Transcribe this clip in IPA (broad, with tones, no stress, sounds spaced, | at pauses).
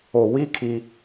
o˨ w i˦ kʰ i˦